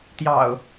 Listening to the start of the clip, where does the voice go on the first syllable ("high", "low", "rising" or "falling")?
low